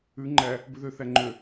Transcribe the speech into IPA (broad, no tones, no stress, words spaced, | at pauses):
ʉ ŋ͡ǃæ | bʉðø θæŋ͡ǃø